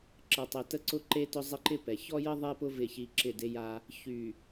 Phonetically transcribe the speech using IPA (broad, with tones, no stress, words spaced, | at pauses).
ǁə˨tˤe˨ tə˦ǀʊ˦ǃe˦tʊ˦ zˤɪ˦ǃɪ˦pɛ˨ çɔ˦jə˦ ðˤe˦pʊ˦ vɪ˦˨çi˦ ǁɪ˦˨de˦ja˦ | çy˨